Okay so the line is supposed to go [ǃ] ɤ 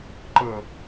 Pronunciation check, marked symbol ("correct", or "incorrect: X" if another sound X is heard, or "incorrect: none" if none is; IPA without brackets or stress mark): correct